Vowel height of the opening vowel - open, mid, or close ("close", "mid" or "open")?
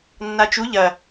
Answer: open